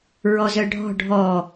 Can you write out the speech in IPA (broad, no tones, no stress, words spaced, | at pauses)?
ɹɔzœɖʱɔ̤ ɖʱɔ